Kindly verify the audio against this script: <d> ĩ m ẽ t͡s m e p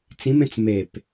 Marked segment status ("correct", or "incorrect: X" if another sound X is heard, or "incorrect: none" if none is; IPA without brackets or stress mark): incorrect: t͡s